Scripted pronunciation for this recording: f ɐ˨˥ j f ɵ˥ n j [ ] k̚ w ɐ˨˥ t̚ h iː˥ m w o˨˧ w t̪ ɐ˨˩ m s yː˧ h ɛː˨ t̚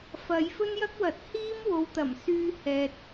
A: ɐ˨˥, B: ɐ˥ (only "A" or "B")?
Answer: B